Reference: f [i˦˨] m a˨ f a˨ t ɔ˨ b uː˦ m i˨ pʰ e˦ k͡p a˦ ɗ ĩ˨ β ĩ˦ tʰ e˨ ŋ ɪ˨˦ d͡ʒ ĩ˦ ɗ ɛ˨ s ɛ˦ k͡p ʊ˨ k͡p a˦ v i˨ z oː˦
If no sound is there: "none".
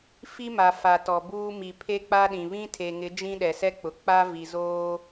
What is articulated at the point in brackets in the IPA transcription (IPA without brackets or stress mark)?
i˦